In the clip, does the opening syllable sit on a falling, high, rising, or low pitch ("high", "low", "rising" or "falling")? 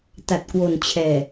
low